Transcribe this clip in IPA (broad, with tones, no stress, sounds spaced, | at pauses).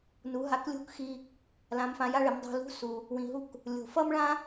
n u˩˧ ɦ a˧ k lʲ o̤˥ k x i˧ | l ã˩˧ m f ã˩˧ j a˧ ɭ e˩˧ m dˤ o̤˧ l ṳ˧˥ s u˩ | w ĩ˩ ɦ u˧ k | lʲ o̤˩ f ʌ˥ m ɭ ã˥